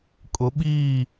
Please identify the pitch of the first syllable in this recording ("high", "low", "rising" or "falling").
rising